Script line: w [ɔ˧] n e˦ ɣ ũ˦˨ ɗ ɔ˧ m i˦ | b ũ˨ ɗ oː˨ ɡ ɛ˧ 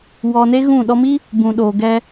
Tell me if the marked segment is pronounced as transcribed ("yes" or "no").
no